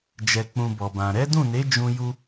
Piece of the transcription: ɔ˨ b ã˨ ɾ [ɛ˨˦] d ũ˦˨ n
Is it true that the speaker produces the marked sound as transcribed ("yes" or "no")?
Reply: yes